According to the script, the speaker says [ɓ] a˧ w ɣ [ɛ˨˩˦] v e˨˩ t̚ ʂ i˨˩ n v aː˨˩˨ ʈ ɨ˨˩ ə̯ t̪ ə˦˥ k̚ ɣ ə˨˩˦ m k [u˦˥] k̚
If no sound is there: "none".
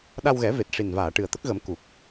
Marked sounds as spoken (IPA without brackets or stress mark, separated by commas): ɗ, ɛ˨˩˦, u˨˩